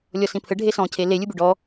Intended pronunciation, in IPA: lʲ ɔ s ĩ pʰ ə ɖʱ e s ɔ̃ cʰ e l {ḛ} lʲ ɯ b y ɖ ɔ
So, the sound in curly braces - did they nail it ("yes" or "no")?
no